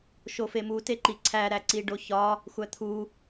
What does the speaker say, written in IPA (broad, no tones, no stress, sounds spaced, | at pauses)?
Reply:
ʃ o f e m u t e ǃ i ǀʰ æ ɾ æ ǀ i ɖ o ç ɒ | xʷ æ t̪ʰ u